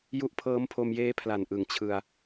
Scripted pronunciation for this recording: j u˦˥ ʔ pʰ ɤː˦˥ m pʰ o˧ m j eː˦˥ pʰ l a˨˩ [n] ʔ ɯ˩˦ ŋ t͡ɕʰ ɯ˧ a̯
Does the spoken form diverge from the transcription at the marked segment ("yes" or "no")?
no